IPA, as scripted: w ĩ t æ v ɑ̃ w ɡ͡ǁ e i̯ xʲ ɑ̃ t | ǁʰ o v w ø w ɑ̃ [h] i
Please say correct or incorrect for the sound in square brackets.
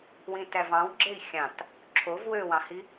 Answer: correct